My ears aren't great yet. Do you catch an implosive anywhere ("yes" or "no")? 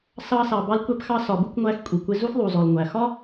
no